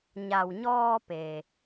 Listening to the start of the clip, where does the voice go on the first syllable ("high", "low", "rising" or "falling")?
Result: low